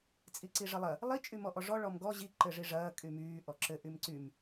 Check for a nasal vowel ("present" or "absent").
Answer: absent